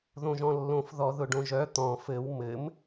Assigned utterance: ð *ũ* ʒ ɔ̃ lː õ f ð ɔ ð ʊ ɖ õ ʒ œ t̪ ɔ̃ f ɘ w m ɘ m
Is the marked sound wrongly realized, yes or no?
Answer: yes